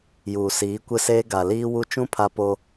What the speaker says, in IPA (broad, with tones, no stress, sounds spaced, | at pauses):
j uː˨ s iː˨˦ kʷ ɪ˦ s eː˦ ɡ a˨ l iː˦ w u˦ t͡ʃ ũ˦ pʰ a˦ p o˦